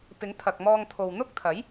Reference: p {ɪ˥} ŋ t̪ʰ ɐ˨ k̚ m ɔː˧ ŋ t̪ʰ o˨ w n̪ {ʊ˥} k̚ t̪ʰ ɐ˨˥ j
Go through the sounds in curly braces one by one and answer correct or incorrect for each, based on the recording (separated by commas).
incorrect, correct